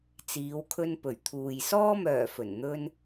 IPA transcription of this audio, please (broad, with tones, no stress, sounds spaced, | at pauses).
t͡s iː˨˧ w kʰ ɵ˧ n p ɵ˨˩ ɥ t̪ʰ uː˨ j s ɔː˧ m œː˨˩ f ɵ˨˩ n n̪ ɵ˧ n